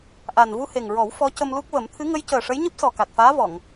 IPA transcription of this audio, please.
ʔ a˨˩ n v u˧ h e˨˩ ŋ ɹ ɔ˨˩˦ w f ɔ˧˥ c ə˧ m l u˦˥ k̚ v ə˨˩˦ m t̪ʰ ɨ˧˥ ŋ ə˧˥ j c əː˨˩ ʂ ə˧˥ j ɲ ɨ˦˥ p̚ s ɔ˨˩ k a˨˩ t̚ f aː˧˥ v ɔ˨˩˨ ŋ

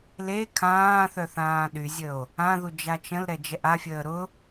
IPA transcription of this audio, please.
l e kʰ ãː θ œ θ ãː ɗ y zʲ ə o̯ | ã ð u d͡ʒ a t͡ʃ ə̃ l ɾ ɛ d͡ʒ ɛ ʔ a fʲ əː ɾ ʊ

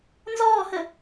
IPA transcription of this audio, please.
n z ɔː h ə

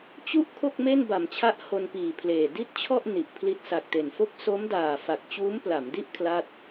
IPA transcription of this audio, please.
t͡ɕ u˦˥ ʔ kʰ o˥˩ k̚ m e˥˩ n b a˩˦ m t͡ɕʰ a˦˥ ʔ h o˧ n p iː˨˩ pʰ l eː˨˩ d i˥˩ t̚ t͡ɕʰ ɔ˥˩ ʔ n i˨˩ ʔ pʰ l i˦˥ t̚ s a˨˩ k̚ t e˨˩ n f o˦˥ k̚ s o˦˥ m d aː˨˩ f a˨˩ k̚ t͡ɕ uː˦˥ m p l a˩˦ m d i˥˩ ʔ kʰ l a˥˩ t̚

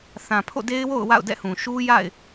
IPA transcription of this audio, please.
θ ã˨ pʰ o̰˦˨ d e˦ ɪ̯ w o̰˦˨ ʊ̯ w a̰˦˨ ʊ̯ d ɛ̰˦˨ h ũ˨ ʃ u˦ j a̰˦˨ ɪ̯

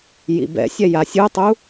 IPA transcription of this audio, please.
j ḭ b ɛ̰ sʲ ɛ j a sʲ ɯ tˤ u

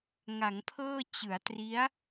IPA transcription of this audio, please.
ŋ a˩˦ ŋ pʰ ɤː˥˩ t͡ɕ ɯ˩˦ a̯ t r i˦˥ a̯

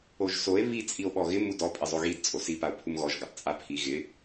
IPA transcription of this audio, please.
o ʒ s o e̯ β i t͡sʼ i o̯ ɓ ɔ ɣ ɪ m u d ɔ pʼ ɪ zˤ o ɣ i d t͡sʼ o s i p a o̯ pʰ u m ɣ ɔ ʒ ɡ a tˤ t͡sʼ a pʰ i ɣ ɪ

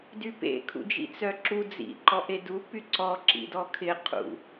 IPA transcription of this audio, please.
d y p ḛ kʰ ṵ d͡ʒ ḭ t͡s œ ǁ u d͡z ḭ ǃ ɔ ʔ e d u p y ǀ ɔ ǁ ḭ d ɔ kʰ ɪ qʰ ṵ

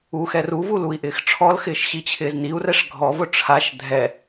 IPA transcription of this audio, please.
u x ɛ r u v u l u i̯ ʔ ɪː x ʈ͡ʂʰ ɔ l x ɪː ʃ ɕ i t͡ɕʰ ɪː z n i u̯ r ɛ ʂ ɡʱ ɔ v ʊ ʈ͡ʂʰ a ʃ dʱ ɛ

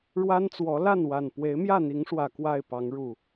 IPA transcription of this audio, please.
ɻ w a˦ n t͡s w ɔ˨˦ l a˥˨ n w a˨˩ n p w e˨˦ ɪ̯ m j ä˥˨ n̪ i˨˦ ŋ ʂ w ä˨˩ k w a˥˨ ɪ̯ p ɑ˨˦ ŋ ɻ u˨˩

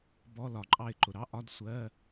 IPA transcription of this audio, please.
b ɔ˧˥˧ l ɒ˨ ǃʼ ɑ˦˨ ɪ̯ ǃ ʊ˨ ɾ ɑ˧˥˧ ʔ ɒ˧˥˧ d sʷ ɜ˧˥˧

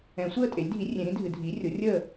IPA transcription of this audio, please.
ɛ̃˨˩˦ sʷ əː˥˨ tʼ e˩˥ lʲ dʱ i˩˥ rʲ ẽ˨˩˦ ɾ ĩ˩˥ dʱ ɨ˨˩˦ dʱ iː˩˥ rʲ o˩˥ rʲ əː˥˨

